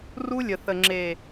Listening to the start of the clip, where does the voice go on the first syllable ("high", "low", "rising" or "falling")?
high